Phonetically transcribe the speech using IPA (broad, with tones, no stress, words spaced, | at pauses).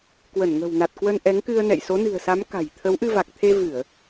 kwə˧˩nŋə̤˨˩wna˨˩t̚kwə˧n ʔɛ˨˦ŋkɨ˧ə̯nɛ̰˧˨j so˨˦nɨ̤˨˩ə̯sa˨˦m ka̤˨˩jt̪ʰə˨˦wʔɨ˧ va˨˩k̚t̪ʰe˧vɨ˧˩˨ə̯